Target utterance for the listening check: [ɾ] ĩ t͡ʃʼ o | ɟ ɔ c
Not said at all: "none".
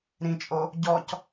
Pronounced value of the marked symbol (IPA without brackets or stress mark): ɾ